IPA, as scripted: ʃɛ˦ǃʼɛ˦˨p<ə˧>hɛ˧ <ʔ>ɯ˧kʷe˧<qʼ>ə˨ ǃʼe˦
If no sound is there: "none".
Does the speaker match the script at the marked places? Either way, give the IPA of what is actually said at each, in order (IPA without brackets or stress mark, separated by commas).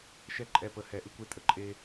ə˧, ʔ, tʼ